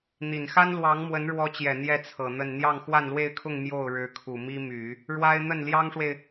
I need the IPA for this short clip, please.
n̪ i˨˩ n x a˥ n l w ɑ˧˥ ŋ m w ə˧˥ n ɻ w ɔ˧˥ t͡ɕ j ɛ˨˩ n̪ j ɛ˥˩ t͡sʰ ɤ˨˩ n̪ ə˥˧ n n̪ j ɑ˥˧ ŋ x w a˥˧ n l w e˥˧ ɪ̯ kʰ ʊ˥˧ ŋ m j o˥˩ ʊ̯ ɻ ɻ̩˧˥ kʰ u˨˩ m i˥ m y˨˩˦ | ɻ w a˥ ɪ̯ n̪ ə˥˩ n l j ɑ˥ ŋ ʂ w e˨ ɪ̯

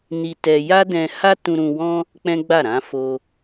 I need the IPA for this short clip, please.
n i˧ t ɛ˧ j a˦ d ɛ̃˧ h a˦ t ũ˧ ɾ ũ˧ w ɔ̃˦ | k͡p ɛ̃˦ ɡ͡b a˦˨ ɾ ã˨˦ f o˧

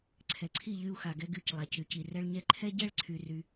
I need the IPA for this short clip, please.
ǀʰ ɛ˨ ǀʰ i˦˨ ʎ y˦ u̯ x a˨ ɡ ɛ˦ ɡ y˦˨ c lˠ a˨ c y˨ c i˨ r ɛ˦ ɭ ɲ ɛ˦ ǃʰ ɛ˦ ɟ ɛ˦ ɭ ǀʰ y˨ r y˦

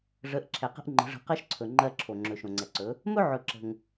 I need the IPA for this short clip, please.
ʐ ə˨˦ ʔ ǁʰ ɛ˨ q ə̤˦ ʔ ŋ͡ǃ ə̤˨˦ ʐ ə̤˨˦ q ɜ˦ ʃ ǀʰ ɵ˨ ŋ͡ǃ ɜ˦ ǁʰ o˨ ŋ͡ǁ ɵ˨ ʃ õ˨ ŋ͡ǀ ɛ˨ ǀ ɵ˨˦ | m ɵ˦ ʕ ɵ˨ ǁ ə̤˨ ŋ

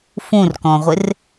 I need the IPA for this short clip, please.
f ũ r k ɔ̃ ʁʷ ɪ r

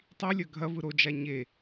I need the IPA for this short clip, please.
tˤ i lʲ ɐ ɡʱ ɐ v ɯ ɾ o d͡ʒ a ɲ e

